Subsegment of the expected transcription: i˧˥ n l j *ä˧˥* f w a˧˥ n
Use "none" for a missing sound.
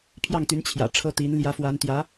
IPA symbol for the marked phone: ä˧˥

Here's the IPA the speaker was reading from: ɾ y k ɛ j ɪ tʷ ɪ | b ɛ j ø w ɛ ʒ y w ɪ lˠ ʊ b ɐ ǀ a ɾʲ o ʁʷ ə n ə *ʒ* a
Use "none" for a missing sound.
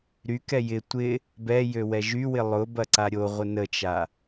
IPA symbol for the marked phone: t͡ʃ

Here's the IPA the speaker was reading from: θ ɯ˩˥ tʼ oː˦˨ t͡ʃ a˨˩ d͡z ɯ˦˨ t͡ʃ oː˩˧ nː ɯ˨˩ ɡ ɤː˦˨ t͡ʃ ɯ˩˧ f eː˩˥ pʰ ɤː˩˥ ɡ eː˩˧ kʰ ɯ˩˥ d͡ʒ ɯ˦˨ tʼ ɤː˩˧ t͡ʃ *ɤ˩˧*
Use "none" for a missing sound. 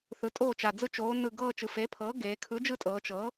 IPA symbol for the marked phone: ɤ˩˧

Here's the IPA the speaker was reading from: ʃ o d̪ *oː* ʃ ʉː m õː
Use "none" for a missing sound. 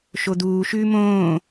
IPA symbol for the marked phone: uː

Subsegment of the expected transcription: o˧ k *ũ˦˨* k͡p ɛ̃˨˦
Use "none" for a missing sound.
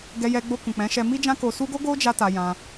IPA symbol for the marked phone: ũ˨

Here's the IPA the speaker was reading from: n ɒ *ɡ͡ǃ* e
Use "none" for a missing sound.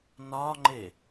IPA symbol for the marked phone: ŋ͡ǃ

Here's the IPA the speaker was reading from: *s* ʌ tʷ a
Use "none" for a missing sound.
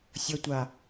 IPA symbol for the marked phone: sʲ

